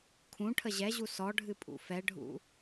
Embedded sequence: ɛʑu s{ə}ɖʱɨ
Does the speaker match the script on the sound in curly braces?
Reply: no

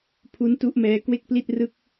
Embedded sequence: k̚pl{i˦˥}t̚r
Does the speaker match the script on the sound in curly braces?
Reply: no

